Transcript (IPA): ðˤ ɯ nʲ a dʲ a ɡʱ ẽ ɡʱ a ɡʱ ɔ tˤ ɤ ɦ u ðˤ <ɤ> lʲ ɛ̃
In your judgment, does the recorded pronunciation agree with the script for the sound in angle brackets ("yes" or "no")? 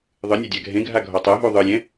no